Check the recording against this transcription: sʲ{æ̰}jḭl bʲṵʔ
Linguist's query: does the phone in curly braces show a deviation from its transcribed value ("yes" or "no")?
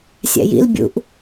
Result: no